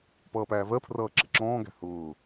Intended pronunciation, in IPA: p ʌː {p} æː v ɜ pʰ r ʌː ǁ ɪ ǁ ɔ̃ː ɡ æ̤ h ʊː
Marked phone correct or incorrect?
correct